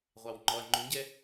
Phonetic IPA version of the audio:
ʁʷ ɑ w ŋ͡ǃ ɔ ɐ̯ ŋ͡ǃ ũ ɟ ɛ

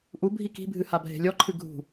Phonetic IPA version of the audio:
ʔ u bʱ i k i̤ bʱ ɨ h a bʱ e̤ lʲ ɔ ǃʰ ɨ ɡʱ ṳ

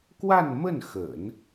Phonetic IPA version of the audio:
k w a˥˧ n m ə˥˩ n x ə̰˨˩˦ n

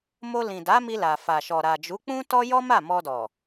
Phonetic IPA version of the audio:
m o˧ l ĩ˨ d a˨˦ m i˧ l a˨ f a˨ ʃ ɔ˨ ɾ a˨ d͡ʒ u˨˦ k͡p ũ˦ t ɔ˦ j ɔ˦ m a˦˨ m ɔ˧ d ɔ˨

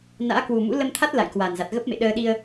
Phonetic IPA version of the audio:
n a̰ː˧˥ k w u˨˩ m ṵ˧˥ l ə˧ m t̪ʰ a˦˥ t̚ l a̰˧˨ j k w a˨˩ n z a˨˩ t̚ ɣ ə˦˥ p̚ m ḛ˧˨ ɗ əː˧ ɗ i˧ ə̯

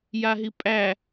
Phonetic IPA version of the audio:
j a ɦ i pʼ æ

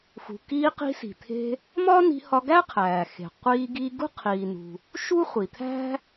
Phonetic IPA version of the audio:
x ṳ˩ k iː˧ q i̤˧ s i̤˩ t̪ʰ e̤˧ | m ɒː˥ n i̤˧ h ɒ˧ ɡ æ˥ qʰ æː˩ x e̤˩ qʷ iː˧ ɡ iː˧ ɡ ṳ˥ qʰ iː˩ n ṳ˩ | ʃ u˥ χʷ i˩ t̪ʰ æ̤˥

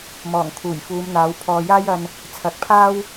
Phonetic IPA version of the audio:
m ɔː˨˩ ŋ kʰ uː˨˩ j f uː˨˧ m n̪ aː˨˥ w pʰ ɔː˨ j aː˥ j ɐ˧ n | t͡sʰ ɐ˨˥ k̚ pʰ aː˥ w

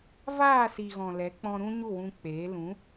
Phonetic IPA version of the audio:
v aː˦˨ s i˨ ɣ ɔ̃˨ l ɛ˨˦ k͡p ɔ̃˧ ɾ ũ˧ ɲ u˦˨ w ũ˧ k͡p eː˨˦ l ũ˨˦

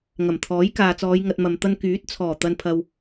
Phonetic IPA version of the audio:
ŋ ɐ˨˩ m t̪ʰ ɔː˨˥ j k aː˨ t͡s ɔː˨˧ j ŋ ɐ˧ t̚ m ɐ˨ m t̪ ɐ˥ n k yː˨˥ t̚ t͡sʰ ɔː˨˩ t̪ ɐ˧ n pʰ ɐ˧ w

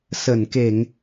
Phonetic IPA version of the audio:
s ə˧˩ n k e˧˩˨ ŋ

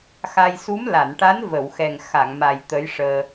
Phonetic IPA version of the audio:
x a˧ j s u˧˥ m l a˨˩˨ n ʈ a˧˥ n v ə˨˩˨ w x ɛ˨˩ ŋ x a˨˩˨ ŋ m a˨˩ j t̪ ə˧˥ j ʂ əː˧

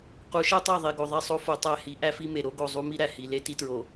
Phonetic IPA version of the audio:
q u˨˦ ʃ e˦ tˤ æ˦˨ ðˤ i˨ ɡ o˨ ðˤ e˦˨ sˤ o˦ f o˨ tˤ æ˦˨ h i˨˦ ʔ æ˦ f i˦ m e˨ ɾ o˦ ɡ o˨ zˤ u˦ m i˦ ɾ æ˨ h i˨ l e˦ t i˦ t ɹ o˨

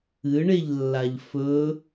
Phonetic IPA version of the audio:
ɨ ɳ e ʎ lː a ʎ f ɵ

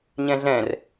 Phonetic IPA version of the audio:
ɲ ɛ̃ ɮ ɛ̃ r

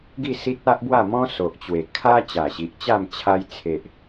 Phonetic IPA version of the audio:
ɡ i˥˧ s i˦ t̚ a˦ ʔ b w a˥˧ m ɔ̃˦ s o˨ ʔ t͡ɕ w e˨˩ kʰ a˦ t͡ɕ a˨˩ ɕ i˨ ʔ t͡ɕ a˥˧ m t͡ɕʰ a˧ j t͡sʰ e˨ ʔ

